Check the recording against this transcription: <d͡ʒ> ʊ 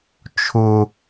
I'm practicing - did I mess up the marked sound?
yes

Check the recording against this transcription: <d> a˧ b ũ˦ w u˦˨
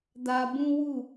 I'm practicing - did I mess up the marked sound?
no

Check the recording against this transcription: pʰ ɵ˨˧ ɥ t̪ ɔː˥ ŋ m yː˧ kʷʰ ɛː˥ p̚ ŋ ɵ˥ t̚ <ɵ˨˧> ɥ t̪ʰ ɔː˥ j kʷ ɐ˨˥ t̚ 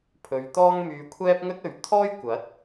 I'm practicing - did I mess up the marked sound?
no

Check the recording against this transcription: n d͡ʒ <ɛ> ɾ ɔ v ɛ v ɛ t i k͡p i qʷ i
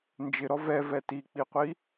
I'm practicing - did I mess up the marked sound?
yes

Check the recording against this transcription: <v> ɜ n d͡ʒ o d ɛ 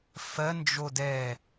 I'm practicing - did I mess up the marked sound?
yes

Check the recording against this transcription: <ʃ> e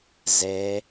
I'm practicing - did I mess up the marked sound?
yes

